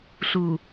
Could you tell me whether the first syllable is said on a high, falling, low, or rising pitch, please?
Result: low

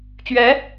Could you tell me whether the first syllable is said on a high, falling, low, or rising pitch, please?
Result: rising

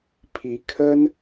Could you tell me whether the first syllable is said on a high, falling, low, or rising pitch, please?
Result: rising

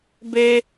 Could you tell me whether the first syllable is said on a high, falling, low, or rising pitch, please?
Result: high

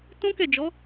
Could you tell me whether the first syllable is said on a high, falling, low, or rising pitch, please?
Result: high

